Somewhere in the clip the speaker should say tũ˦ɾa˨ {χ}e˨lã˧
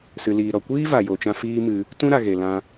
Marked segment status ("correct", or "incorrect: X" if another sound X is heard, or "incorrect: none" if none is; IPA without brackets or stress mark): incorrect: ɣ